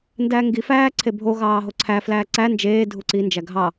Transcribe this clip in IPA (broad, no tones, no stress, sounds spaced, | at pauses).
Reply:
n d æ ŋ ɡ i f æː ǀʰ e bʱ o ɣ ɑː ɦ o ǀʰ æ f l æː ǀ æ n d͡ʒ eː dʱ u ǀ i n d͡ʒ æ ɡʱ ɑ